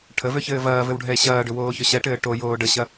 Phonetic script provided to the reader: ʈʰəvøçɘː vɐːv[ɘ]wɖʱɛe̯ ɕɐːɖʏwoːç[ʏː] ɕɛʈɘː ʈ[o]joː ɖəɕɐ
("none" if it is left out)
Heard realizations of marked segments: ɘ, ʏ, o

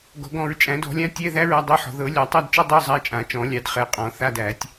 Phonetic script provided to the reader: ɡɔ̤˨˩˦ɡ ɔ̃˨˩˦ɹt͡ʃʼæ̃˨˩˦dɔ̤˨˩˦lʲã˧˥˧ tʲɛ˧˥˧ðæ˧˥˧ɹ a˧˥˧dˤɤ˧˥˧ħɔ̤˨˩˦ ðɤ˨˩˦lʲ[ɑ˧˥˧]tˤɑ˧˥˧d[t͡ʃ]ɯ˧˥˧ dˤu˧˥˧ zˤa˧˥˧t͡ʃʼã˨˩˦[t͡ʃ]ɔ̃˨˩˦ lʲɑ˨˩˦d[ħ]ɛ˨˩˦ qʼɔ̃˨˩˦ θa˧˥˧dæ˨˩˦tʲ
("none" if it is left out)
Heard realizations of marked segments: ɑ˨˩˦, t͡ʃ, t͡ʃ, χ

